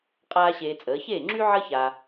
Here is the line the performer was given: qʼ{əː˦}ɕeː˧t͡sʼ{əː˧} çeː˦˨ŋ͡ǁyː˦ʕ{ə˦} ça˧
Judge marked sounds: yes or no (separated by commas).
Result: no, no, no